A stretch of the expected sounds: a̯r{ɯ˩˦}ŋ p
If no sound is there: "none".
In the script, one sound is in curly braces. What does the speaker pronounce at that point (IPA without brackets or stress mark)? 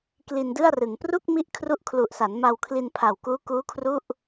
ɯ˩˦